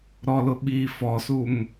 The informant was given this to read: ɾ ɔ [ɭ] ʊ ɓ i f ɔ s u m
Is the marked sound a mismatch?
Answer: yes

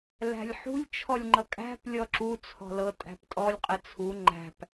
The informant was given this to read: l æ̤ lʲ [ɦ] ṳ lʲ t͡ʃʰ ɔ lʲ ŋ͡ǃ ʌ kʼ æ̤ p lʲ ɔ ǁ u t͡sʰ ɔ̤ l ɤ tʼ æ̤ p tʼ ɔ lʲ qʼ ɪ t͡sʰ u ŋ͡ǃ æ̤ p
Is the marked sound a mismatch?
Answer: yes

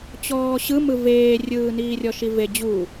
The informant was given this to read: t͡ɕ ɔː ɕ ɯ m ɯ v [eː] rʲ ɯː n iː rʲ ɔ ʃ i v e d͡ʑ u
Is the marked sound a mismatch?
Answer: no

